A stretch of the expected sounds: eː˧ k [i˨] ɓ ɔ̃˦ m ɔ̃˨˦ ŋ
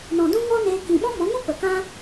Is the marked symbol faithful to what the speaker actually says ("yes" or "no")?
no